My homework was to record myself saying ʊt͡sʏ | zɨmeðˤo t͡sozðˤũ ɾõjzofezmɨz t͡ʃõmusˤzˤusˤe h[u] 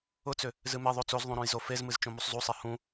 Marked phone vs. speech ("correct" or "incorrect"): incorrect